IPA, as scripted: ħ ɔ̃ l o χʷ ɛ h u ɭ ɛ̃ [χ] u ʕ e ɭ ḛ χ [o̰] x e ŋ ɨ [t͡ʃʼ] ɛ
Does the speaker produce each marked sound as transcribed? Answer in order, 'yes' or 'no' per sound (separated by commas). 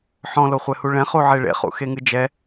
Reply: yes, no, no